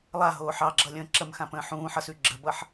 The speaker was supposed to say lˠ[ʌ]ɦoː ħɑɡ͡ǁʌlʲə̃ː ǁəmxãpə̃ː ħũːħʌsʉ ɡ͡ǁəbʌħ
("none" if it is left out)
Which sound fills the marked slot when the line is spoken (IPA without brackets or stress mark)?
a